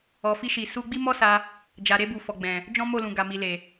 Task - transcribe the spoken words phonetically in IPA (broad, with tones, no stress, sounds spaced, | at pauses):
ɔ˨ f i˧ ʃ i˨ s u˧ ɡ͡b i˦ m ɔ˦ s a˧ | d͡ʒ a˨ ɾ e˧ b u˨ f ɔ˨ ɡ͡b ɛ̃˨ | d͡ʒ ɔ̃˦ m o˦˨ l ũ˨ ɡ a˨ m i˨ l e˨